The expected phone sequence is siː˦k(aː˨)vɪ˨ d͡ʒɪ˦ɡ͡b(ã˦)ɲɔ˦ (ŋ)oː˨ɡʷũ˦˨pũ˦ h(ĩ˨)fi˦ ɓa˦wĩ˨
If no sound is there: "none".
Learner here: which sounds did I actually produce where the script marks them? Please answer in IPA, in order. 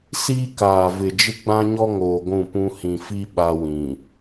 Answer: aː˨, ã˦, ŋ, ĩ˨

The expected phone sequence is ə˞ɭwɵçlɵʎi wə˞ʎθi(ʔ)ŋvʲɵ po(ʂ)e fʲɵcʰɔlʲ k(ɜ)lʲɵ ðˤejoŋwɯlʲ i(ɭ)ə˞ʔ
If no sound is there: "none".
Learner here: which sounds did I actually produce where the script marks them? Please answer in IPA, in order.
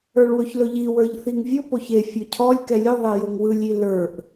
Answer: none, ç, ɛ, l

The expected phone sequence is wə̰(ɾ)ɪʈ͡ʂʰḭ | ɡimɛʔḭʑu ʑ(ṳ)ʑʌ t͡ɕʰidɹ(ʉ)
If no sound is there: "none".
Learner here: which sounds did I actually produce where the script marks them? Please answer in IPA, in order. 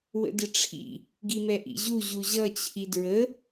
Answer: d, u, ə

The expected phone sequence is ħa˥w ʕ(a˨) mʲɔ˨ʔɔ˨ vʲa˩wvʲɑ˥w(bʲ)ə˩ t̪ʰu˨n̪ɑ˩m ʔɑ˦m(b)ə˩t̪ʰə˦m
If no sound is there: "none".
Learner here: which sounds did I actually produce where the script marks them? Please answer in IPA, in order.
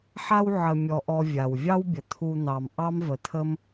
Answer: ə˨, bʲ, v

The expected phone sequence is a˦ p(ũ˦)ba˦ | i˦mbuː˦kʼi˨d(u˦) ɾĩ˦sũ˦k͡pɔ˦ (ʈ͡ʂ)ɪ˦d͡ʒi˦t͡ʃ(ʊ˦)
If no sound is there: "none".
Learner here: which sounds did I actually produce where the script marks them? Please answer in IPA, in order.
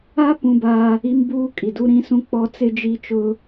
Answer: ũ˦, u˦, t͡s, ʊ˦

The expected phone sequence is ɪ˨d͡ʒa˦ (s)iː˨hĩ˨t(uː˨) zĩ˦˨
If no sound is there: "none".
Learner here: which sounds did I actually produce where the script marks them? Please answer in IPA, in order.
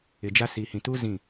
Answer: s, uː˦

